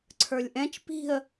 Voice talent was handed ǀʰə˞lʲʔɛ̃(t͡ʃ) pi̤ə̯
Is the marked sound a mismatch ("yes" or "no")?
no